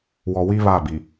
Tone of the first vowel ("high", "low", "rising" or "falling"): low